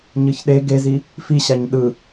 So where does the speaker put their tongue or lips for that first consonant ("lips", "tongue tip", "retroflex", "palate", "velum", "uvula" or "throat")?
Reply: palate